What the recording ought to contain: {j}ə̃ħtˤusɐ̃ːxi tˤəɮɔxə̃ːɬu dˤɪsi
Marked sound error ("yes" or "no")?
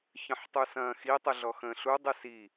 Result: yes